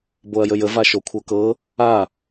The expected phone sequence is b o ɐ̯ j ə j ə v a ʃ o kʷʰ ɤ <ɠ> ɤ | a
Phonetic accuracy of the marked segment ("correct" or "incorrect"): incorrect